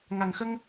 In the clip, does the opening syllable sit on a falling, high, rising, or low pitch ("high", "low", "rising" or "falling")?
low